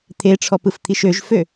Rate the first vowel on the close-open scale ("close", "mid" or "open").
mid